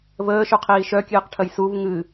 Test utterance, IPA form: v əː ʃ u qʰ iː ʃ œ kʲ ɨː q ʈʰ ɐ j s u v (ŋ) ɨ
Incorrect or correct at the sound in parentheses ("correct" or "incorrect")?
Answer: correct